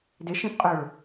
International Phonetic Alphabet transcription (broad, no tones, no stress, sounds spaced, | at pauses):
d ɪ ʃ ĩ p qʼ o ɭ